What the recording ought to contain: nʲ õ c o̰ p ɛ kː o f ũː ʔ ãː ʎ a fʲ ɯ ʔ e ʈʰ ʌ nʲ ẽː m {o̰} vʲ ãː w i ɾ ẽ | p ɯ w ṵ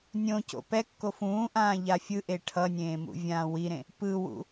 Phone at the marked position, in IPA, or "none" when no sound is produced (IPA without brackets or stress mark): ṵ